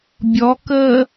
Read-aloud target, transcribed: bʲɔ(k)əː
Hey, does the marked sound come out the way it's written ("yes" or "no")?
yes